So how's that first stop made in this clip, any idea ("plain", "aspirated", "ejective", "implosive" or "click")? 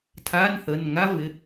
aspirated